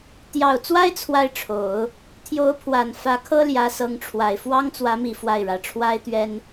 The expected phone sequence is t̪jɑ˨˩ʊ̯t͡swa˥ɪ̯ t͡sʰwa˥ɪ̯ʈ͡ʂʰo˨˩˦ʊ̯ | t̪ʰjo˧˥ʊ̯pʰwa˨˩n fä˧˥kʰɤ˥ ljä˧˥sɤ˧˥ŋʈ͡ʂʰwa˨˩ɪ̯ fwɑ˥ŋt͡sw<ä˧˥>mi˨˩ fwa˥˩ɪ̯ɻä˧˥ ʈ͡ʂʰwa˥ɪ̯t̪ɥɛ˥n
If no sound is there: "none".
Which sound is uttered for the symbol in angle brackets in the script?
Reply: ä˧˥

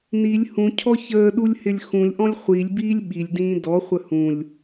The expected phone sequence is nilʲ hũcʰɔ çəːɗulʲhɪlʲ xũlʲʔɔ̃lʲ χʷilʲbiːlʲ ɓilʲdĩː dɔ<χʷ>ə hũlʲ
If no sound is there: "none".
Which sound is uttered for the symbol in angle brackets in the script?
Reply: χʷ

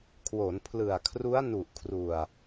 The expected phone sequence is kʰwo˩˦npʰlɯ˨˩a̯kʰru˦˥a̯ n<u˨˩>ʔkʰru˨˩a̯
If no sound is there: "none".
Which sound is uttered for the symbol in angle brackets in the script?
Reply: u˨˩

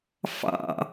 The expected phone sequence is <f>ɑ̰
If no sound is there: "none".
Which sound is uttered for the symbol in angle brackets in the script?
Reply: f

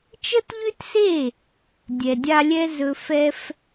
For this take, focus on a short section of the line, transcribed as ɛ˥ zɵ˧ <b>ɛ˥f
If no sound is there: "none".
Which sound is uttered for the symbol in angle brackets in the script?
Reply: f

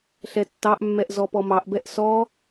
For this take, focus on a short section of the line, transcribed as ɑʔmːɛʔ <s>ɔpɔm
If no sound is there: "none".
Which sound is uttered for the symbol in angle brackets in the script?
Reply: z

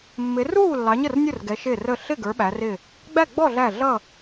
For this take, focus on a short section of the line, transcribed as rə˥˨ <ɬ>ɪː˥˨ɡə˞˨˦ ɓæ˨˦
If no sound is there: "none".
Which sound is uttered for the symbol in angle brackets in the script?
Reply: ɬ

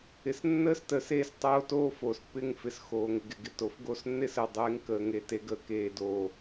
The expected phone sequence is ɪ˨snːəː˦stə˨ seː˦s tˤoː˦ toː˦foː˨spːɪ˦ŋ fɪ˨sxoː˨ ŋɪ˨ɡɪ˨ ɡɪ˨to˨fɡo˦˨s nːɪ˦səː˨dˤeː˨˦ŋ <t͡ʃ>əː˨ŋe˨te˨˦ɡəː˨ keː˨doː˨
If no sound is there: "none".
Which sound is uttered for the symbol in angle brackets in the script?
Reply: k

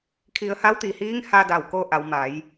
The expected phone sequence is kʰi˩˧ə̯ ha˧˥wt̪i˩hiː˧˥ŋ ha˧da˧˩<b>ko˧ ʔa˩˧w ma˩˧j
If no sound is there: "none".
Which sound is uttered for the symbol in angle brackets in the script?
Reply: w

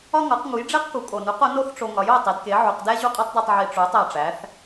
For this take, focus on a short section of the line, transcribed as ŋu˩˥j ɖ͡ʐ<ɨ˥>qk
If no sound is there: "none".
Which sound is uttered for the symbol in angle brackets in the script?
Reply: e˥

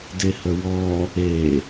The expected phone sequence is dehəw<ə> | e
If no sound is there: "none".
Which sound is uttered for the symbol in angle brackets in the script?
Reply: ɔ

